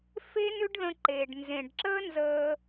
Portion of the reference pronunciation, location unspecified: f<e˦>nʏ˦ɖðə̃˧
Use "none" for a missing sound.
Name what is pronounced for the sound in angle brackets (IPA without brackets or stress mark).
e˦